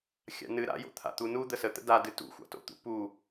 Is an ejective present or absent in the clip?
absent